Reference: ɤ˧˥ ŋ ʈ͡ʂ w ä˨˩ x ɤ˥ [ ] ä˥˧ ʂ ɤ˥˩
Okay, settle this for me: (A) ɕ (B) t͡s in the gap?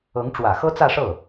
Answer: B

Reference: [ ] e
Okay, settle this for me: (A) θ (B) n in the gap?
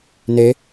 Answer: B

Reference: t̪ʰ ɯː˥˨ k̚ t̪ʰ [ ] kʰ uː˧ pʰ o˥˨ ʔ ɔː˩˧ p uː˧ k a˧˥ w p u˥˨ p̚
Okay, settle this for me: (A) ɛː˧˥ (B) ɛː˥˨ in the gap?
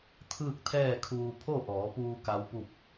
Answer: B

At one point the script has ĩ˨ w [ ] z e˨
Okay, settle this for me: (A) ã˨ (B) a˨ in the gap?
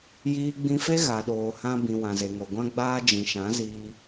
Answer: A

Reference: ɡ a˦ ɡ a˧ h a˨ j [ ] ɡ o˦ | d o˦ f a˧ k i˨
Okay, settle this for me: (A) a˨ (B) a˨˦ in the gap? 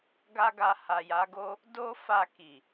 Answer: B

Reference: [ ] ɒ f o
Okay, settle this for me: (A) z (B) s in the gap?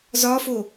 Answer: A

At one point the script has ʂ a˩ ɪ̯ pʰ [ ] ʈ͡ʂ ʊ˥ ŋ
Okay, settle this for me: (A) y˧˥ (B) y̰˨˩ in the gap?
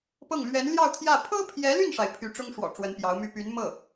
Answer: A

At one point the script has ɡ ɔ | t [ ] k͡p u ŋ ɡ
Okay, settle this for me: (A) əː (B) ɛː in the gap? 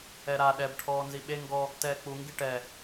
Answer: B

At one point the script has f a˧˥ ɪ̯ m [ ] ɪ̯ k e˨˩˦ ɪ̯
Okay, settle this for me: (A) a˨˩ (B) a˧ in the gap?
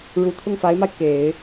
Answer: B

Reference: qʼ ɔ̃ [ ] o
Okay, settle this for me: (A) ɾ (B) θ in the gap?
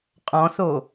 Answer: B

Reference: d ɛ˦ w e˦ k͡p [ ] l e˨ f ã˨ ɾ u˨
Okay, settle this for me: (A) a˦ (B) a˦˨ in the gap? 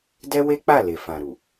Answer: B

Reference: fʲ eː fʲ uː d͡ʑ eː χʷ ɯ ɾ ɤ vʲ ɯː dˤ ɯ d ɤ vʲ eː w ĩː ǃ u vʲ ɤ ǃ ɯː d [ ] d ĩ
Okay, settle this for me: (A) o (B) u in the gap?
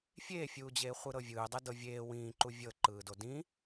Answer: A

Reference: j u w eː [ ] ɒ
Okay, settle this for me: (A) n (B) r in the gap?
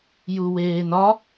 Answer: A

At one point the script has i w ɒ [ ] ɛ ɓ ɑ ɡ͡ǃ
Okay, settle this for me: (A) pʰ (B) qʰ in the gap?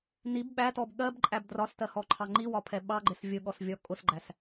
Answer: A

